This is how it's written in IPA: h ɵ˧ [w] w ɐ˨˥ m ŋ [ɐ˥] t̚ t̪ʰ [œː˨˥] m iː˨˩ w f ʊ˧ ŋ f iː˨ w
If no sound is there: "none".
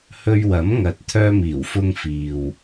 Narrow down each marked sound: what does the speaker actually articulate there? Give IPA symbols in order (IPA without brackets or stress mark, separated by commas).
ɥ, ɐ˨, œː˧